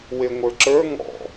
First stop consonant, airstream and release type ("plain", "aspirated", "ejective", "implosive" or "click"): click